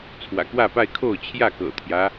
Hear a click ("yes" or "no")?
no